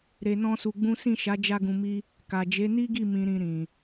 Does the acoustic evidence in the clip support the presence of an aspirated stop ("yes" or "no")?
no